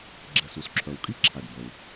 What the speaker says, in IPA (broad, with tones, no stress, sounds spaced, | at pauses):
ɡ͡ǁ ɛ˩ s u˩ s ǁʰ œ˩ w kʼ i˥ ǁʰ a˩ ɖ b ɐ˩ w